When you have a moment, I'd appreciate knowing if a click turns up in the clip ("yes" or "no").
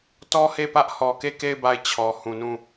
no